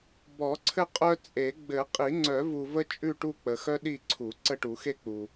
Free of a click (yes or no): no